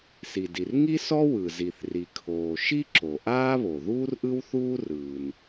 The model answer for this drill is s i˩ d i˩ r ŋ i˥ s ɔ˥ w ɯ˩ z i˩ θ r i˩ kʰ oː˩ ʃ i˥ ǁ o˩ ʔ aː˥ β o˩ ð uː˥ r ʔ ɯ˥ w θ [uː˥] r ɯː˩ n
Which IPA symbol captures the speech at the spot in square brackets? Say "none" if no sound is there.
uː˥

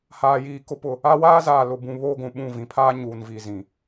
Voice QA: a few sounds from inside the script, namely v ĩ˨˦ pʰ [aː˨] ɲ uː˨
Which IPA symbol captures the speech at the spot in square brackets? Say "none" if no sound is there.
aː˦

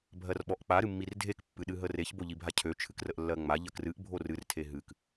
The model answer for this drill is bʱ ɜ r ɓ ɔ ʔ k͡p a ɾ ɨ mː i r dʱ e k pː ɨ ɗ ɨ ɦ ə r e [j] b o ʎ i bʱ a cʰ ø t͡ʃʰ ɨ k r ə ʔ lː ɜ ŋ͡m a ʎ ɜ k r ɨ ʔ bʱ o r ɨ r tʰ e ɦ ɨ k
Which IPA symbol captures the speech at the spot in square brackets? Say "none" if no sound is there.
ç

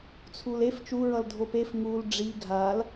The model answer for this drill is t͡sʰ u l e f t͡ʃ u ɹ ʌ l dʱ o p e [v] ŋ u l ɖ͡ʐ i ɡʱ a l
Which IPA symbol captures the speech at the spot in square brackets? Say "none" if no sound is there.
f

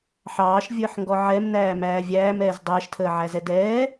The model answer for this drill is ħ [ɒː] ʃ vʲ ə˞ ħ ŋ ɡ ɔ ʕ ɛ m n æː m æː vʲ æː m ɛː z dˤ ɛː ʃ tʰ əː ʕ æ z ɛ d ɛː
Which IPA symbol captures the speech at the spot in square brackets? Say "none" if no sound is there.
ɑː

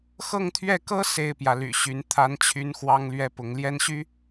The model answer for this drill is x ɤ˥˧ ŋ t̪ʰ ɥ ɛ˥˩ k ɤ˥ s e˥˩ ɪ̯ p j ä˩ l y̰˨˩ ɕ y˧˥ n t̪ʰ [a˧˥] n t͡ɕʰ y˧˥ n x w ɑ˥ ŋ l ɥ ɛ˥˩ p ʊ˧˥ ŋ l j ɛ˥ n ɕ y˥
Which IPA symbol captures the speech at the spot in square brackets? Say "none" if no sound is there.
a˧˥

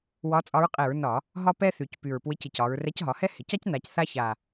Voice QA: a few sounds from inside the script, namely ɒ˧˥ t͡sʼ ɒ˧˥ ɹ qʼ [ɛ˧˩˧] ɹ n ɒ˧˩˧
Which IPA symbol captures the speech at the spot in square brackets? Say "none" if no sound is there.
ɛ˧˩˧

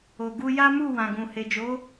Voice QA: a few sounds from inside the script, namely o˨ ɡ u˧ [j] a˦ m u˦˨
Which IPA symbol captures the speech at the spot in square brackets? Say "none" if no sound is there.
j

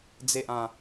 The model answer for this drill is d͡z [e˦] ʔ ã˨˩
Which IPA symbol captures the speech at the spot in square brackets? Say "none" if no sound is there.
e˨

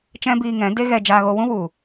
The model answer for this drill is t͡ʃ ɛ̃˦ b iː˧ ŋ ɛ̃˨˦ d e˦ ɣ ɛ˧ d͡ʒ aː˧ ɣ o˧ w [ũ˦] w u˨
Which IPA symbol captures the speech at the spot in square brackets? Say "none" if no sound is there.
ũ˦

